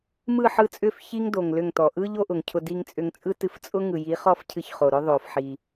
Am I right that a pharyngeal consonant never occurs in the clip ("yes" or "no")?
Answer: no